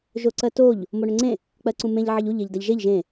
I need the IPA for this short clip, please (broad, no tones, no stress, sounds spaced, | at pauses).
ʒ o ǀ ɜ t o ʎ | m o ɳ ø ŋ͡ǀ ẽ | k͡p ɜ ǀ ũ m ẽ ʎ ʕ ə ʎ u ʎ e ʎ d a ʎ ʒ e ʎ ʒ ẽ